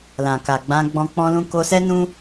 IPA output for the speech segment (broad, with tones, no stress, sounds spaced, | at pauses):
l ã˨ k a˨ ɡ͡b ã˧ ɡ͡b ɔ̃˧ k͡p ɔ̃˧ l ũ˧ k o˧ s ɛ˦ n ũ˦